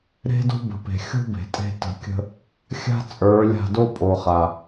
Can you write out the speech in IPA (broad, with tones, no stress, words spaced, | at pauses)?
ɾe̤˦do̤˦bə̤˨pe̤˨ xʲo̤˦ be̤˨tʼe̤˦ tə̤˧kʲə̤˦ | xʲa̤˦ t͡sʼə˞˨˦lʲa̤˦˨ do˦pʼo˨ χa˨